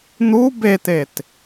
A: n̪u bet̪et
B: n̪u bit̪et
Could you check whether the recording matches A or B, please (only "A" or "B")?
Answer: A